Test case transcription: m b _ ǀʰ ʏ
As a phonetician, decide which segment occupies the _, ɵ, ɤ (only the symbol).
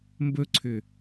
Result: ɵ